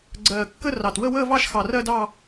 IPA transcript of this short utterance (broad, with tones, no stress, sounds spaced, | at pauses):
ɡ͡ǀ ɜː˨˩ kː ə˥˧ r ɑ˨˩ t w ə˥˧ w əː˥˧ v ɑ˥˧ ʃ x ɑ˨˩ r ɜ˥˧ d ɑ˥˧